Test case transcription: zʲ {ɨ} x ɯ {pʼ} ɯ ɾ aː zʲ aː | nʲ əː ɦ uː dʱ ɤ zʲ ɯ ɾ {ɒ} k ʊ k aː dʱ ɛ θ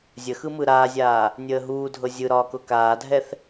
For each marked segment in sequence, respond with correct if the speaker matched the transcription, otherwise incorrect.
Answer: incorrect: ə, incorrect: m, incorrect: ɒː

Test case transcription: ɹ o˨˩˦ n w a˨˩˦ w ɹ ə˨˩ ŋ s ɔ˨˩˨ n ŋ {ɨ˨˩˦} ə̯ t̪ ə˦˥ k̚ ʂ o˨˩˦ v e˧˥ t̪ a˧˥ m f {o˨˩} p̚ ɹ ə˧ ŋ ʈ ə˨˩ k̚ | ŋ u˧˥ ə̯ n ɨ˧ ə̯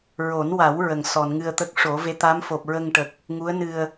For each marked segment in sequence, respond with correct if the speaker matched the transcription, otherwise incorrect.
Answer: incorrect: ɨ˧, correct

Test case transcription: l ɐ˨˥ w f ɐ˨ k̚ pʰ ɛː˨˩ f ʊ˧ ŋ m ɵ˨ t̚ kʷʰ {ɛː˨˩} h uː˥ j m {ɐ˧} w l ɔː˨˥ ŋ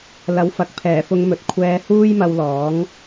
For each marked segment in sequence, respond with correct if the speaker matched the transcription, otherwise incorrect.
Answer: incorrect: ɛː˧, correct

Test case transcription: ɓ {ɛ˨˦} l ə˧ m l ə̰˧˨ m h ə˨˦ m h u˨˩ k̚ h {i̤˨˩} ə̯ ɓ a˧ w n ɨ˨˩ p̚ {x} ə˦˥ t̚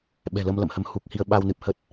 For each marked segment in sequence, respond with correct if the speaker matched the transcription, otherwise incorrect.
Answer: incorrect: ɛ̤˨˩, incorrect: i˧, incorrect: h

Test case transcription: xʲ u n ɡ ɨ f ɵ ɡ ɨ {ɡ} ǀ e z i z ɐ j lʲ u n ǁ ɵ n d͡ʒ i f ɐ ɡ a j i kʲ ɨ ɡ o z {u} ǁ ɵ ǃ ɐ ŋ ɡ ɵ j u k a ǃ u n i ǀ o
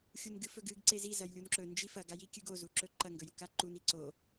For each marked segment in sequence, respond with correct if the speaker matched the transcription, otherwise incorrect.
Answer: correct, correct

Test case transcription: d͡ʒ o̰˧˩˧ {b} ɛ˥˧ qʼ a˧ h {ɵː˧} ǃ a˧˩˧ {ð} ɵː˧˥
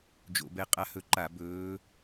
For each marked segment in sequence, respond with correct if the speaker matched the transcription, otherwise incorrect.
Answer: correct, incorrect: ɵ˧, incorrect: b

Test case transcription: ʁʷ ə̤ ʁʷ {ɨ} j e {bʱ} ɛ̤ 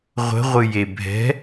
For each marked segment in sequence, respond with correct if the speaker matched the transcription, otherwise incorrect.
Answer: correct, correct

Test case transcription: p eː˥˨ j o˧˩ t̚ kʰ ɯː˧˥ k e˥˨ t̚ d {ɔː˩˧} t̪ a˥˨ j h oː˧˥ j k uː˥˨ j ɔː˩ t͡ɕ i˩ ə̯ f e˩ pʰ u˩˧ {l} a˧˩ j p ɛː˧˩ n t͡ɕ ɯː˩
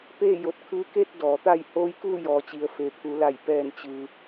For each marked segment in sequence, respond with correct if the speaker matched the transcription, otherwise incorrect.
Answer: correct, correct

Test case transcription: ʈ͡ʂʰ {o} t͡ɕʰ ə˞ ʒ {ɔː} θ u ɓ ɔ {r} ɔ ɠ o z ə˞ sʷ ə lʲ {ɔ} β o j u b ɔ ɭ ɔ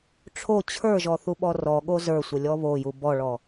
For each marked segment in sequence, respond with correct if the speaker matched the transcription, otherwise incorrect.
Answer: correct, incorrect: ɔ, correct, correct

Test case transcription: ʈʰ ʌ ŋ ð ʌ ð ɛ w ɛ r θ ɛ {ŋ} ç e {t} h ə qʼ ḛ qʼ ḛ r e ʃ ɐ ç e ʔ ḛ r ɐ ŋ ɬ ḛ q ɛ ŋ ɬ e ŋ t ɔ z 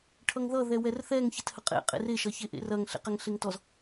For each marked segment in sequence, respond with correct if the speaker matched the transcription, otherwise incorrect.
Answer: correct, correct

